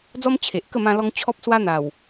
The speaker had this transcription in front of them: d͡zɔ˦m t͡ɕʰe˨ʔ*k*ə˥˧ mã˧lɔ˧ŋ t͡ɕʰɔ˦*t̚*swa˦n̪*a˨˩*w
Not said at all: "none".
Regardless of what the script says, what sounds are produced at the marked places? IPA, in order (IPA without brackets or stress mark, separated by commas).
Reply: k, p̚, a˨˩